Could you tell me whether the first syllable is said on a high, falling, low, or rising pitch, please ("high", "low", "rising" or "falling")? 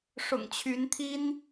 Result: low